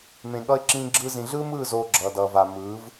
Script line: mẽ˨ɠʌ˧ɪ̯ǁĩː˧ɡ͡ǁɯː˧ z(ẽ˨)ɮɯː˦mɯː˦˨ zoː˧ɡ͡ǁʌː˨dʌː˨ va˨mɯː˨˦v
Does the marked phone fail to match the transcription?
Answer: yes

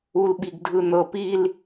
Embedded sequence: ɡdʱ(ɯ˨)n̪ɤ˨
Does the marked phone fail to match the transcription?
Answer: no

